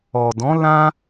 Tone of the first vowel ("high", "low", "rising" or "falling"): low